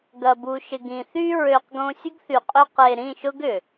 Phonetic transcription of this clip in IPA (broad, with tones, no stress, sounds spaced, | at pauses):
ɡ ɐ˨ b u˨ ʃ ɪ˨ ɡ ĩ˨ θ y˧ ɹ ø˨ q ɡ õ˧ sʲ ʊ˦ ɡ θ y˨ qʼ ʏ˧ q e˨ ɾ ĩ˦˨ ʃ ʊ˦ ɡ ʏ˨